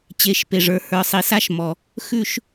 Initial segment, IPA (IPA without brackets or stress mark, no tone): t͡ɕ